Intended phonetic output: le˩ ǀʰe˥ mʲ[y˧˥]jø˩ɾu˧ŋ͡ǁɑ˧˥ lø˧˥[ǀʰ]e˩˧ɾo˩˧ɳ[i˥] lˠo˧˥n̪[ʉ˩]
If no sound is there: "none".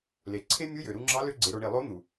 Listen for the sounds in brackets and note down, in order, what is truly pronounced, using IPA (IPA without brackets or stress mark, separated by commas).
u˧˥, ɡ͡ǀ, i˩, u˩